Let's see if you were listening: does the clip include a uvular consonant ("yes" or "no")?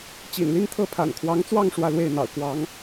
no